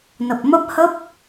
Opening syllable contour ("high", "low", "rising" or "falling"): low